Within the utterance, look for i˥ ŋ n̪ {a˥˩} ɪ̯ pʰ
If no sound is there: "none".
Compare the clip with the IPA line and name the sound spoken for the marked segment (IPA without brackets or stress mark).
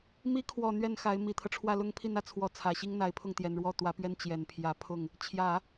a˧˥